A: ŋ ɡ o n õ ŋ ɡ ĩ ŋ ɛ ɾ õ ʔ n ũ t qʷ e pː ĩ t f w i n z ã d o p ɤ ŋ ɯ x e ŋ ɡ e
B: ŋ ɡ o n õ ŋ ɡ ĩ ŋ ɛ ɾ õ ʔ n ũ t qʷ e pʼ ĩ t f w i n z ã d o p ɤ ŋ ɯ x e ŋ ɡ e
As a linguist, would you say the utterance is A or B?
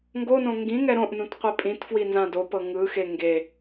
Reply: B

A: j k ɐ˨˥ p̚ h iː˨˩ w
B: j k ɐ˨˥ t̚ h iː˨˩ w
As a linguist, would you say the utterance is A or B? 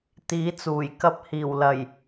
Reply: A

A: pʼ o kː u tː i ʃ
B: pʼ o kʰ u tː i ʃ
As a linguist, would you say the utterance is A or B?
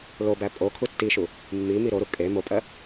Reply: B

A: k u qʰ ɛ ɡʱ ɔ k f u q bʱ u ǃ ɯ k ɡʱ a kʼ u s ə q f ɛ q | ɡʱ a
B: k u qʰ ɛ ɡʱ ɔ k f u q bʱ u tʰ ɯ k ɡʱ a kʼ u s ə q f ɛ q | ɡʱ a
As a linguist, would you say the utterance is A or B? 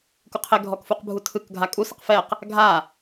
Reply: B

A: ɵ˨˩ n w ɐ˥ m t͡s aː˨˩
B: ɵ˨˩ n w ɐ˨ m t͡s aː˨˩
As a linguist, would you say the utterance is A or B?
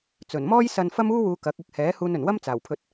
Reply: A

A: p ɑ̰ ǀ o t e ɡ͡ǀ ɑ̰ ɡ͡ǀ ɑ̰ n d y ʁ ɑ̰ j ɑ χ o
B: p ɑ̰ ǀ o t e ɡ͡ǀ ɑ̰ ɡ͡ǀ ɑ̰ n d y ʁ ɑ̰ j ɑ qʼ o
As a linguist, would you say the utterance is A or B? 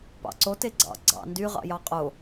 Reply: B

